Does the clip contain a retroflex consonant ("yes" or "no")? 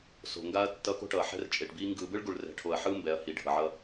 yes